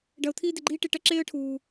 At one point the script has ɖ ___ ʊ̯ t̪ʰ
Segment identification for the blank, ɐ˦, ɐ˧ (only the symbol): ɐ˧